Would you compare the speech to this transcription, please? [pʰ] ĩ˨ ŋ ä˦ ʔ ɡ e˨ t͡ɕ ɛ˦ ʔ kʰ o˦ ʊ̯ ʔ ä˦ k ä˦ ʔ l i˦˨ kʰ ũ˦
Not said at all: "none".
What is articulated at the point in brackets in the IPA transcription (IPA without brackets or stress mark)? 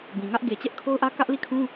b